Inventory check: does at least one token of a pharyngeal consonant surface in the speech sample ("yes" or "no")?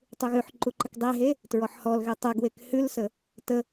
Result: yes